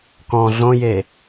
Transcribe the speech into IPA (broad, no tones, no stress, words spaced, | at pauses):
kɔ̃ ɮõje